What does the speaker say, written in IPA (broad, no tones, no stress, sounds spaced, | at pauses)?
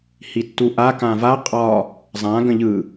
h i tː u ʔ a k ã v a qʼ ɒ | zˤ ã ɡ ə̃ ʎ ɯ